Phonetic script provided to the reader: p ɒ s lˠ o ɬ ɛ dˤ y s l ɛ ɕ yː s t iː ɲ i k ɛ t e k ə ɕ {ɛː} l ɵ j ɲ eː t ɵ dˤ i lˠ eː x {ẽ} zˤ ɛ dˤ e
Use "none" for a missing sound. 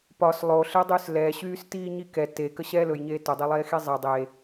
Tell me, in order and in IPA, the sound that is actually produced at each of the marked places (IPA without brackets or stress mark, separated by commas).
ɛː, e